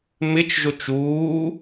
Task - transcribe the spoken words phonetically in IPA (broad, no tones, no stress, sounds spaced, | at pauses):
m ɪ t͡ʃ ʒ o t͡ʃ uː